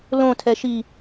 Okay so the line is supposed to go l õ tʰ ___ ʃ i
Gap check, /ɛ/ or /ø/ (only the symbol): ɛ